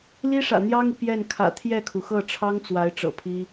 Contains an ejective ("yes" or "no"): no